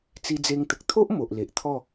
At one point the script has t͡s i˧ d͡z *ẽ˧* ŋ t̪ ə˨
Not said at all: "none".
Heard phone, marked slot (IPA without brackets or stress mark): e˧